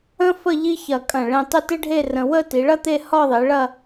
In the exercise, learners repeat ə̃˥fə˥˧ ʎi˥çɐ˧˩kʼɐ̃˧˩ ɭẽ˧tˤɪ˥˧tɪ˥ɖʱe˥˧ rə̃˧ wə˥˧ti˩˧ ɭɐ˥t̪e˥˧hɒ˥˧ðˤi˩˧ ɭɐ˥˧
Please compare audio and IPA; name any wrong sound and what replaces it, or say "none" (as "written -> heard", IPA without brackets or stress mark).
none